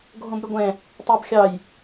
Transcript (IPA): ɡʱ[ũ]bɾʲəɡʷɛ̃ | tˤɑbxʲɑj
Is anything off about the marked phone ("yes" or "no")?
yes